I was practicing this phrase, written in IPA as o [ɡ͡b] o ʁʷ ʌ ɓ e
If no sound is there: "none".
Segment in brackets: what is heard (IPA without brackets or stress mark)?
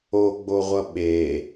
ɡ͡b